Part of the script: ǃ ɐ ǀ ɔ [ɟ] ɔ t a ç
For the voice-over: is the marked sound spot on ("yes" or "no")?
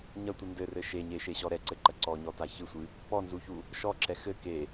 no